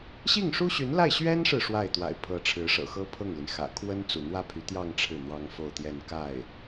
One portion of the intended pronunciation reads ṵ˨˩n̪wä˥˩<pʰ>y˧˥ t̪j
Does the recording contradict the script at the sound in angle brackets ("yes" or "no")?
no